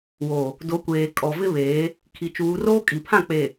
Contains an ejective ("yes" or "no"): yes